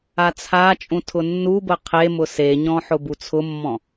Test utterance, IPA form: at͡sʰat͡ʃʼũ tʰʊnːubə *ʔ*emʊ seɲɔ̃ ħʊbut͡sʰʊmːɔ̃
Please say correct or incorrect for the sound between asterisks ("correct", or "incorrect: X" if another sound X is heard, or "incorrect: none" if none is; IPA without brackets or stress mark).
incorrect: qʰ